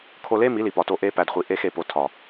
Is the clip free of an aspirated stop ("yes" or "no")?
no